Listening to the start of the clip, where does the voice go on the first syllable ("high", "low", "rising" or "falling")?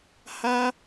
high